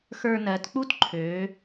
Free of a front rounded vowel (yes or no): no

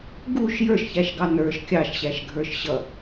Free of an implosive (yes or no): yes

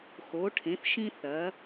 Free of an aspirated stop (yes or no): no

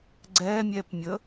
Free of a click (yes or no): no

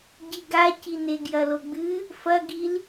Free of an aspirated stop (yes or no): yes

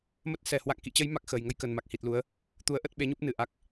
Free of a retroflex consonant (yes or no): yes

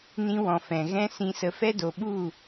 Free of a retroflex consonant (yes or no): yes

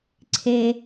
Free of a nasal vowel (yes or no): yes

